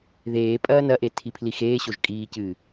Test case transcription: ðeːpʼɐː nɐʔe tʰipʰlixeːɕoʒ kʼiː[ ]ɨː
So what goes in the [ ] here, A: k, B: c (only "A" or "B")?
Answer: B